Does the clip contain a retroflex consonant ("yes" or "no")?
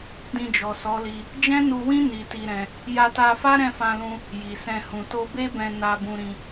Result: no